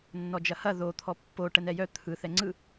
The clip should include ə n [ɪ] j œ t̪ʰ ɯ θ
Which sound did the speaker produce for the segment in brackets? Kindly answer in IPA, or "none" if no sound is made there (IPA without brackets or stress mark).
ɛ